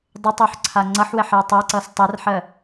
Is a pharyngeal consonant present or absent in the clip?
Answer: present